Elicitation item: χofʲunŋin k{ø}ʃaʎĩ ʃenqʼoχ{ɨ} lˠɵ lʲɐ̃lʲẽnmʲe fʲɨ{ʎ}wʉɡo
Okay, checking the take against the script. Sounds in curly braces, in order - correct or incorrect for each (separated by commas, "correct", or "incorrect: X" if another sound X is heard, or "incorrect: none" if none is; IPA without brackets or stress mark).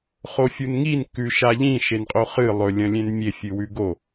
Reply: incorrect: ʉ, correct, incorrect: none